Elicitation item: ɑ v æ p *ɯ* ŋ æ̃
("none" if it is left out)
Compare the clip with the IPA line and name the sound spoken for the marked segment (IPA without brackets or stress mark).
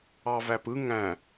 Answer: ɯ